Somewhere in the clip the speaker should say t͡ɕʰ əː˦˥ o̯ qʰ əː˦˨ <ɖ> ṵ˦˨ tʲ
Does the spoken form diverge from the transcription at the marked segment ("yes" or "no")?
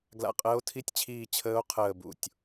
yes